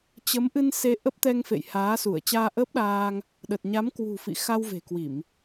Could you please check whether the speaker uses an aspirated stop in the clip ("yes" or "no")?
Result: no